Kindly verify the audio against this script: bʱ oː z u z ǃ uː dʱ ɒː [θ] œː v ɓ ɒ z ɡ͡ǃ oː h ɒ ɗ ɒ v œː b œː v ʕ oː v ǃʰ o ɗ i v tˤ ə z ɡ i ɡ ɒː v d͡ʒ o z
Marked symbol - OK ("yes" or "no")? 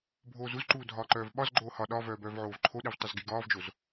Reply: no